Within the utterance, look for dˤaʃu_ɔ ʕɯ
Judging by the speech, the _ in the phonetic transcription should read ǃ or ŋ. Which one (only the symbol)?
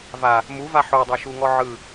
ŋ